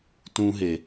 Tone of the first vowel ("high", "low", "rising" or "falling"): high